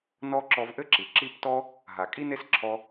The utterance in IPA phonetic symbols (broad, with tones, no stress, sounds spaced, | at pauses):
n ɔ˦ ǁ ɔ˧ v ʔ ɘ˦ ǁ i˨ ǁ i˦˨ p t ɔ˦ | ɦ a˨ kʼ i˦ n e˦ s ǁʰ ɔ˧